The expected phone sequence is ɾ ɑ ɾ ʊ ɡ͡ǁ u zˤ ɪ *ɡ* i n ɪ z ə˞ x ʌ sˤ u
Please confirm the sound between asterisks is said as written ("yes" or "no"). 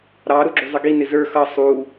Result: yes